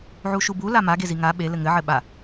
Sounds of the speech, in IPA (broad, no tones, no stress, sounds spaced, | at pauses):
ʕ u ʃ u b u l a m a ɡ e z i ŋ a ɓ e l ɘ ŋ ɘ ʕ ɘ ɓ a